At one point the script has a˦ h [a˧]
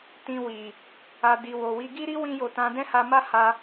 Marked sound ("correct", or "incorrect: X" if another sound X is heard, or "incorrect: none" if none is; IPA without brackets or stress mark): correct